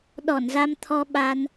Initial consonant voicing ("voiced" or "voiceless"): voiced